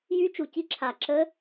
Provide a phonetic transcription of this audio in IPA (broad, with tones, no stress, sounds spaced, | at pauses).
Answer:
j y˦˥ t͡ʃ u˧˩ c i˦˥ ǁʰ a˧˩ ǁ ə˦˥